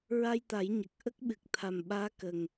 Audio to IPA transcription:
ɹ a˧ j t̪ a˨˩˦ j ɲ ə˨˩ k̚ ʔ ə˦˥ k̚ ɓ ɨ˨˩ k̚ t̪ʰ a˨˩ m ɓ aː˧˥ k ə˨˩ ŋ

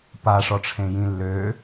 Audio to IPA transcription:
p a ʂ ɔ ʈ͡ʂʰ ẽ j ĩ lː ø

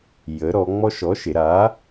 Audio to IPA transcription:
j ə˩˧ ɾ ɔ˩˧ ŋ͡m ɔ˦ ʃ ɔ˨˥ ʃ e˩˧ ɾ a˨˥

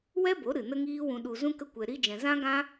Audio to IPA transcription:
w ɛ˦ b o˨˦ ɾ ɨ˨ n ə˦ ŋ iː˦ w ũ˧ ɗ u˧ z ũ˦ k ə˦ kʷ ɛ˧ ɾ i˦ d͡ʒ ɛ̃˧ z ã˦ ɡ ã˦

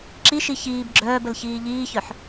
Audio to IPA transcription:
ǁ i ʃ i ç iː b ɡ͡ǁ œː b ə l ç iː ʎ iː ç œ ħ

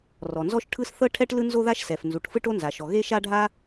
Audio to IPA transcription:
r ɔ˩ n z ɔ˥ ʃ ʈʰ ɯ˥ s θ ɤ˥ ʈʰ ɛ˥ ʈ l ɯ˥ n z o˥ ð a˥ ʃ s ɛ˩ f n z u˩ ʈ f ɯ˥ ʈ o˥ n z a˩ ʃ ɔ˩ ɣ e˥ ʃ a˥ ɖʱ a˥

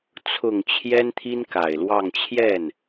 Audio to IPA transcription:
t͡sʰ ʊ˨˩ ŋ t͡ɕʰ j ɛ˥ n t̪ʰ i˥ n k a˨˩ ɪ̯ l w ɑ˥˧ ŋ t͡ɕʰ j ɛ˥˩ n

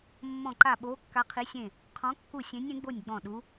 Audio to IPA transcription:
mː ɔ̃˧˩ ǃ a˧˩ ɓ oː˨˦ kː a˨˦ qʰ i˨˦ sʲ ẽ˧˩ | qʰ ɔ̃˨˦ kː u˧˩ sʲ ẽ˨˦ nʲ ẽ˨˦ ɡ͡b o˧˩ nʲ ɡ͡b ɔ̃˧˩ ɗ u˨˦

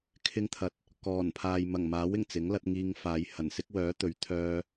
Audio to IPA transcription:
kʰ ɪ˧ ŋ t̪ʰ ɐ˨˥ t̚ | k ɔː˨˩ n pʰ aː˨ j m ɐ˨˩ ŋ m aː˨˥ w ɪ˨˩ ŋ t͡s ɪ˨˥ ŋ l ɐ˨˥ t̚ ŋ iː˧ ŋ f aː˨˧ j h ɐ˨˩ n s ɪ˥ k̚ w œː˨˥ t̪ ɵ˨˥ ɥ t̪ʰ œː˧

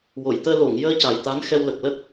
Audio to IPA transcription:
w o˨˩˨ j t̪ əː˧ l o˨˩˨ ŋ j əː˧ c a˨˩ j t̪ a˧˥ n x ɛ˧ w l ə˨˩ k̚ l ə˦˥ k̚

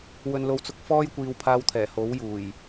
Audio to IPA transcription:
w ɵ˧ n l o˧ w t͡s ʊ˧ k̚ f ɔː˥ j kʷ iː˧ w pʰ aː˧ w t̪ʰ ɛː˨˩ h o˨˥ w j uː˨˩ j

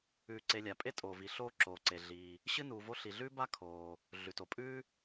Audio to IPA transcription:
ʉː˨ ǀ e˨ lʲ a˩ pʼ e˥ tʼ oː˩ v i˩ ɬ oː˦ ǁ oː˩ ǀ e˩ ɮ iː˩ | ɕ ɨ˦ n uː˨ v o˦ ɬ i˩ ɮ ʉː˥ b a˥ kʰ oː˩ | ɮ ʉ˩ t o˩ pʼ ʉː˦

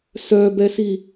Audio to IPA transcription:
s œ b ɛ s i

